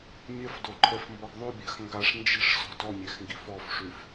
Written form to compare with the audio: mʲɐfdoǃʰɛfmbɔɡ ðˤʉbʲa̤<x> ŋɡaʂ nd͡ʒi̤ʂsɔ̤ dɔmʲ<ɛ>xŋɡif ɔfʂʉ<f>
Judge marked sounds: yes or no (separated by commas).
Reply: yes, yes, yes